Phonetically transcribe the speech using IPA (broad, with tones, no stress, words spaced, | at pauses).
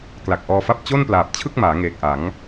kla˨˩k̚ʔɔː˧fa˥˩p̚ t͡ɕo˥˩nplaː˨˩p̚t͡ɕʰɯ˥˩k̚maː˩˦ ŋeː˨˩k̚ʔa˩˦ŋ